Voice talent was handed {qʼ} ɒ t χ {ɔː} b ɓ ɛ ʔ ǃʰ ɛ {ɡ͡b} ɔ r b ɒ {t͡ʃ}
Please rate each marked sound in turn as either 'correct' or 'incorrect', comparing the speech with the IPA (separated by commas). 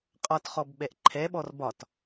correct, incorrect, incorrect, incorrect